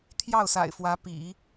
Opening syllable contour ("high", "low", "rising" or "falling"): falling